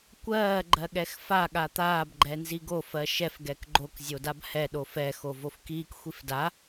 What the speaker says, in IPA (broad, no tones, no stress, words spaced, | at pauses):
kʷɜː ɡ͡ǃɜɠɛxfa ɠat̪aːb ɡ͡ǃɛnziɡo fɜʃɛf ɡɛkɡ͡ǃok zʲodabhɛ ɗofɛ xovofkiːk xʷifda